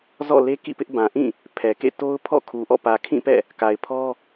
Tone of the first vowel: falling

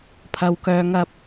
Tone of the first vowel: low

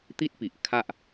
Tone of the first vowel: high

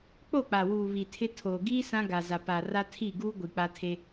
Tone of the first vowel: falling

